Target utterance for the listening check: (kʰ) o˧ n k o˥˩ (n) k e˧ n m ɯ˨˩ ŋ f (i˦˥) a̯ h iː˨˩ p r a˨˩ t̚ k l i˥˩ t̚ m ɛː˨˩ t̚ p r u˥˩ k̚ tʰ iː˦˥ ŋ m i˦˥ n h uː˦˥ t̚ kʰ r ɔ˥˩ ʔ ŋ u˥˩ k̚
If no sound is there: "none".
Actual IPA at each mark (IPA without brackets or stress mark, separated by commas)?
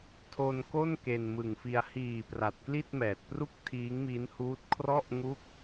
tʰ, n, i˧